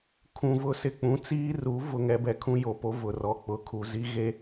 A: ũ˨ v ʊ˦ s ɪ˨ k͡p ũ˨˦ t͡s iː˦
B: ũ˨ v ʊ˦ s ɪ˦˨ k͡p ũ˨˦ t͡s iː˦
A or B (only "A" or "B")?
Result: A